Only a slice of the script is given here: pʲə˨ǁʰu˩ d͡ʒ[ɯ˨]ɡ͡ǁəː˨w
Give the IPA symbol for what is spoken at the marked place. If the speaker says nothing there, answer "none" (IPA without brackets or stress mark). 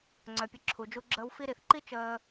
u˨